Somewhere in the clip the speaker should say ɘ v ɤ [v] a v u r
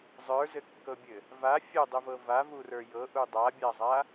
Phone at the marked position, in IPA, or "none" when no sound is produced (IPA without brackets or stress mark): v